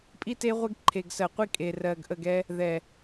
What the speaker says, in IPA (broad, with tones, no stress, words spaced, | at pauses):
pʼi˦te˦ ʁʷe˦ɡǃʰe˨ɡsɜ˨qʷi˦ kʼe˨ rɜ˨ɡʔə˦˨ɡɛ˦ | ðɛ˨